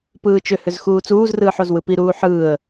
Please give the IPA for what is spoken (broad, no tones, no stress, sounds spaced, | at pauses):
p ɯː t͡ʃ ʏ h ʏ z x uː t͡s uː z r ɯː ħ o z w ɯ p i ɾ uː ħ ɯː ə̯